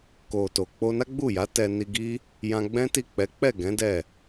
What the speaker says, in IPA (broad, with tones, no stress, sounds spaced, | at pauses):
k o˨ t o˨ k͡p o˧ n a˦ ɡ͡b u˦˨ j a˨˦ t ɛ˧ n i˧ ɡ i˦ | j ã˧ ɡ͡b ɛ̃˦ t i˦˨ k͡p ɛ˨˦ k͡p ɛ˦˨ ɡ ɛ̃˨˦ d ɛ˦˨